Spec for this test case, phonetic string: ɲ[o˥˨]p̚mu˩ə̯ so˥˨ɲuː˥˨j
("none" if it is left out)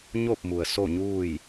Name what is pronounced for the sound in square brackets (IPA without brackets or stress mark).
o˥˨